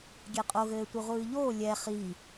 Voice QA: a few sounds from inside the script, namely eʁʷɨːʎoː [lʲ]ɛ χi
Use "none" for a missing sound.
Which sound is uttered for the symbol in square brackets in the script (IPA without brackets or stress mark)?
lʲ